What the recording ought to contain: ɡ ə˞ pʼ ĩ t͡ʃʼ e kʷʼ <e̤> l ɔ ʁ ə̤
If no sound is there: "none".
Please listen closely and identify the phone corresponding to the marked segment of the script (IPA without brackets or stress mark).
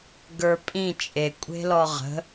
e̤